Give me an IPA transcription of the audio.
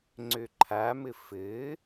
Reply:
ŋ͡ǀ ø ǃʰ a m ɘ f ɘː

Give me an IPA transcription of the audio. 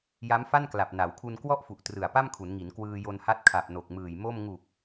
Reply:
j a˦˥ m f a˥˩ n k l a˨˩ p̚ n a˩˦ w kʰ u˧ n k w ɔ˥˩ ʔ f u˨˩ ʔ t r ɯ˨˩ a̯ p a˥˩ m kʰ u˩˦ n ŋ i˩˦ n k w ɯː˧ j o˧ n h a˦˥ t̚ kʰ a˨˩ p̚ n o˨˩ k̚ m ɯː˨˩ j m o˥˩ m ŋ u˨˩ k̚

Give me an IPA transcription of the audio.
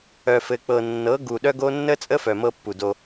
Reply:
œ˨ f ɘ˨ k͡p ɤ˨ nː ɤ˨˦ ɡ u˨ ɗ œ˦ ɡ o˦ nː ə˦ t͡sʼ ə˦ f œ˨ m ɤ˦ pː u˨ d o˦

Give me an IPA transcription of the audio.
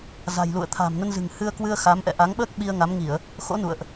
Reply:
z a̤˨˩ j l ṵ˧˨ ə̯ t̪ʰ a̤ː˨˩ m n ə˧ n z ɨ̤˨˩ ŋ h ɨ˧ ə̯ k w ɨ˧ ə̯ x a˨˦ m ʔ ɛ̰˧˨ ʔ a˨˦ ŋ ɓ əː˦˥ k̚ ɓ i˧ ə̯ ŋ a˨˦ m ŋ i˧˩˨ ə̯ | x o̰˧˥ n ṵ˧˨ ə̯ ʔ

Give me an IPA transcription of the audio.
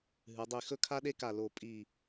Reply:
ɦ ɨ˩˧ dˤ i˧˩ x ɵ˥ kʰ a˥ ɗ e˥ k a˧˩ l o˧˩ pʼ i˧˩

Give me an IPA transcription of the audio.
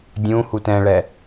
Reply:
dʲ ũ h u t ɛ̃ ɭ ɛ

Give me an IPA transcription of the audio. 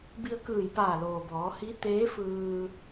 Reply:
b i˧ ə̯ k ɯː˧˩ j p aː˧˩ l oː˩ b ɔː˩˧ h i˧˥ t̪ eː˧˥ f ɯː˧

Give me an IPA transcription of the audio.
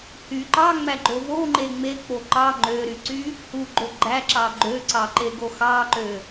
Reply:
h y ǃ ɑ ŋ͡m æ ɡ͡ǃ o v o ŋ͡ǃ e ŋ͡m e k͡p o ǃ ɑ ŋ͡ǃ ø ɾ y ǀ y | h u ɡ͡ǃ o ɡ͡ǃ æ ǁ ɑ ɡ͡ǃ ø ǀ ɑ ǃ e ɡ o x ɑ ǃ ø

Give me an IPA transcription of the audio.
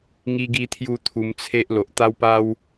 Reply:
ŋ i˧ ɡ i˧ t̪ʰ j u˧ t̪ʰ u˧ m t͡sʰ e˦ ʔ l o˨ ʔ t̪ a˦ w p a˦ w

